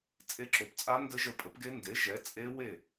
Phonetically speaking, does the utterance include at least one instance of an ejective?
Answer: yes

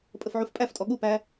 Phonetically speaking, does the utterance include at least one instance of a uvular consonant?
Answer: no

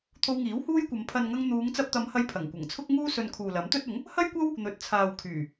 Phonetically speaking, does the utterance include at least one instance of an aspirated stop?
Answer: yes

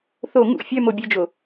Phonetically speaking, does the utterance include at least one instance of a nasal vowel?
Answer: no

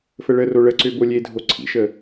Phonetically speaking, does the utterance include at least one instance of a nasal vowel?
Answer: no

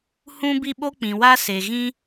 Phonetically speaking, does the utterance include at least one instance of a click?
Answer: no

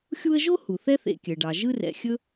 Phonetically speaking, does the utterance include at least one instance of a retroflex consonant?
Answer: yes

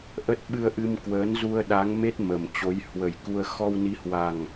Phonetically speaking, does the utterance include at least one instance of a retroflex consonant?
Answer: no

